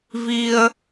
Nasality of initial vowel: oral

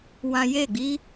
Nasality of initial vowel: nasal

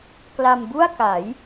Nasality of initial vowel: oral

